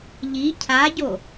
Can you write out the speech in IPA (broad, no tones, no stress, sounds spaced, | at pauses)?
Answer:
ʎ i cʰ a ɟ o